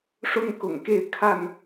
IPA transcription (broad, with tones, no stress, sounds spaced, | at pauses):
ʂ ʊ˦ ŋ k ʊ̰˨˩ ŋ k e˥˨ ɪ̯ kʰ a˥˨ n